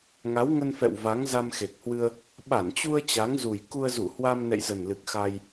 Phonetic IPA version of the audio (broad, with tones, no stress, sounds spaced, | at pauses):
ŋ a˨˦ w ŋ ə˧ n f ɛ̰˧˨ w v a˨˦ ŋ z a˧ m x e˨˩ k̚ h w ɨ˧ ə̯ | ɓ a˧˩ n t͡ɕ u˧ ə̯ t͡ɕ a˨˦ ŋ z u˨˩ j k u˧ ə̯ z u˧˩ h w a˧ m n ɛ̰˧˨ j z ə˨˩ n l ɨ˨˩ k̚ x a˧ j